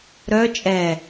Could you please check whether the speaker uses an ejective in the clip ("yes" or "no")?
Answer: yes